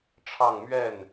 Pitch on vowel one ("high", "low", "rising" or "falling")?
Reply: falling